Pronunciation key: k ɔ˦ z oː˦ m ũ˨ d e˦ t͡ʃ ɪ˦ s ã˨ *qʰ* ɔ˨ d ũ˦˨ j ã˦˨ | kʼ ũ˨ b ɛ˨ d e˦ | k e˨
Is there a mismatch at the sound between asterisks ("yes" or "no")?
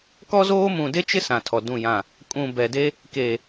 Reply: yes